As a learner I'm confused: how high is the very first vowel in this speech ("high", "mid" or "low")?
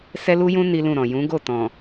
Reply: mid